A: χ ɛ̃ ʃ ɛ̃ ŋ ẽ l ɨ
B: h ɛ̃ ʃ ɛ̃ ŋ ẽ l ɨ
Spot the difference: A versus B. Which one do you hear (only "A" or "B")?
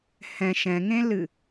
B